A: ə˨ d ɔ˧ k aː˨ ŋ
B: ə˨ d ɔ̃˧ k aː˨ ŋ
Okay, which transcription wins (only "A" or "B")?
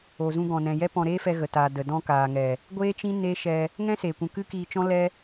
B